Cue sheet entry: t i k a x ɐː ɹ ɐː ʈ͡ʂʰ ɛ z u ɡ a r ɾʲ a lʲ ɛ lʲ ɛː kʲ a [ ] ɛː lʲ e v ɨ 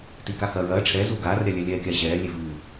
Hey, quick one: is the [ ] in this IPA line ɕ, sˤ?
ɕ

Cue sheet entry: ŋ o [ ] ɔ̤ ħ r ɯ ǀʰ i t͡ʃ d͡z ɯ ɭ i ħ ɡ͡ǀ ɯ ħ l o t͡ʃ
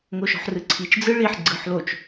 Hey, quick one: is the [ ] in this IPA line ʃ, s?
ʃ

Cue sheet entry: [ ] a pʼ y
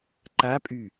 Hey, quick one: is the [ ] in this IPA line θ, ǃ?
ǃ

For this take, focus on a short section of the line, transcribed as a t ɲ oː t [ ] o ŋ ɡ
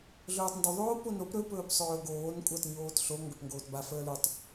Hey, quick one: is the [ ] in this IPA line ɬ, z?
ɬ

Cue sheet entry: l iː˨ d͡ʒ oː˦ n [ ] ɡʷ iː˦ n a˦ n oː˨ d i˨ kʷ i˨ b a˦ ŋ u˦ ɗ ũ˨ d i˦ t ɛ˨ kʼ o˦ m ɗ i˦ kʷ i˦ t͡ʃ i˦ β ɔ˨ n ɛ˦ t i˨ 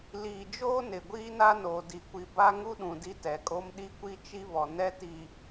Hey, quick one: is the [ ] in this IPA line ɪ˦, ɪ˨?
ɪ˨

